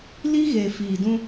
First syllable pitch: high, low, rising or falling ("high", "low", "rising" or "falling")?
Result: high